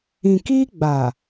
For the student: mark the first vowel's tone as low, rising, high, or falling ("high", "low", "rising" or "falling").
low